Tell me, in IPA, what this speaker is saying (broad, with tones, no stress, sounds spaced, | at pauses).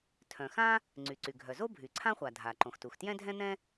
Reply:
tʰ œ̃˩ x ã˥ | ŋ͡ǀ y˩ ǀ y˩ ɡʱ œ˩ z o˥ bʱ y˩ ǀʰ ã˥ χʷ a˩ dʱ a˩ ǃ õ˩ x t u˩ x t j ɛ̃˥ dʱ ɛ̃˥ n̪ ɛ̃˥